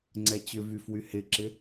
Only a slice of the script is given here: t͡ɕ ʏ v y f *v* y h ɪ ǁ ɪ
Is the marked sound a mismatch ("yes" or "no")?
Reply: yes